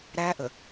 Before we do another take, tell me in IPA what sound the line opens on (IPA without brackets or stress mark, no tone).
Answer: ɾ